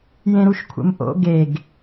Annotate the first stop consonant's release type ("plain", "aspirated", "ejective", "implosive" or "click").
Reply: aspirated